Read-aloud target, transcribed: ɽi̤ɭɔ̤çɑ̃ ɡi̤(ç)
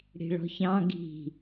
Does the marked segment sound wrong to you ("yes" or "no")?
yes